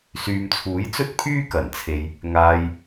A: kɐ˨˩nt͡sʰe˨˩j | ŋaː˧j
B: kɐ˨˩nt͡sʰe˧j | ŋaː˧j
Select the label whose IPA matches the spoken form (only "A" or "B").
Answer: B